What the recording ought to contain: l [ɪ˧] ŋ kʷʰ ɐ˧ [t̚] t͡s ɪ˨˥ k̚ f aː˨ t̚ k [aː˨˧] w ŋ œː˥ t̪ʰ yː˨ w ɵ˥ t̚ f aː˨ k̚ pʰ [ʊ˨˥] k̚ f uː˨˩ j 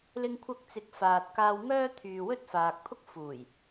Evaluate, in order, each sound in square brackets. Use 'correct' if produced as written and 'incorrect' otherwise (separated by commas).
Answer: correct, incorrect, incorrect, incorrect